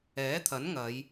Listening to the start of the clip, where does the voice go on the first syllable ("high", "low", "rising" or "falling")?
rising